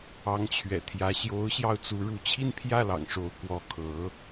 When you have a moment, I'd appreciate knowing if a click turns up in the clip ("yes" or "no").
no